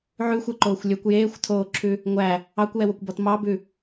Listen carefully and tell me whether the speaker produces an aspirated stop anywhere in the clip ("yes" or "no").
yes